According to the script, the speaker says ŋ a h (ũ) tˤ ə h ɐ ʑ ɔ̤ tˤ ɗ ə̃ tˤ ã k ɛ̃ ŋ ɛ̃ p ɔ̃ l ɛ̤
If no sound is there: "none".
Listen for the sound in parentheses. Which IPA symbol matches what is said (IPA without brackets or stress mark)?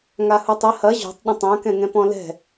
u